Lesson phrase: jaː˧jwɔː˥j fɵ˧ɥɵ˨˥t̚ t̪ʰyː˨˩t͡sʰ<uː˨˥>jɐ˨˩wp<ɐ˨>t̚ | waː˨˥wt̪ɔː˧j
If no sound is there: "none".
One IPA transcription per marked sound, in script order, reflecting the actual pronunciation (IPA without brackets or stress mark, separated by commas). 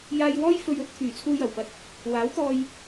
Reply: uː˧, ɐ˨